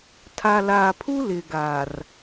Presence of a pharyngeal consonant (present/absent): absent